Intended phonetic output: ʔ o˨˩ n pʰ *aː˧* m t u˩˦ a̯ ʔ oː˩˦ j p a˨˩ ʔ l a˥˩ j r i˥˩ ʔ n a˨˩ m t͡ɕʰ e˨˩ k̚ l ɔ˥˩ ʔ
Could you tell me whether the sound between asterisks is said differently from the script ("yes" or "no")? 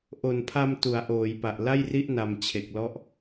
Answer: yes